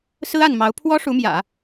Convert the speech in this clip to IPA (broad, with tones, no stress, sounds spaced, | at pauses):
s ɹ̩˥ a˥˩ n m ɑ˧˥ ʊ̯ pʰ w ɔ˥ ʂ u˧˥ m j ä̰˨˩˦